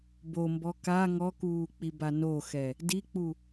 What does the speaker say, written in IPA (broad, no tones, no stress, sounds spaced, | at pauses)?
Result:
b o m b ɔ k a ŋ ɔ k uː k͡p i b a n o x ɛ | d i k͡p u